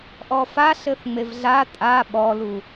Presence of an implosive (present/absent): present